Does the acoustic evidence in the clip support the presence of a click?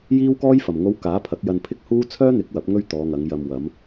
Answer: no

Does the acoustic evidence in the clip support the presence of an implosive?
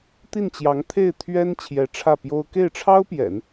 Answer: no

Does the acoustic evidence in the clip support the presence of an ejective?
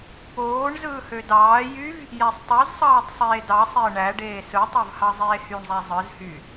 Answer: no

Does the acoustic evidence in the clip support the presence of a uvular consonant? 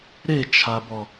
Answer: no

